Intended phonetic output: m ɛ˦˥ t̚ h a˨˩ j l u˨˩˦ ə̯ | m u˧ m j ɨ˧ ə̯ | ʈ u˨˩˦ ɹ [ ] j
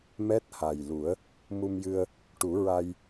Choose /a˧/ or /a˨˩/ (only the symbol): a˧